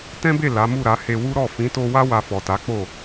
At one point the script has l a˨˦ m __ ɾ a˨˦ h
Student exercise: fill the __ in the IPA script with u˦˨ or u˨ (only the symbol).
u˦˨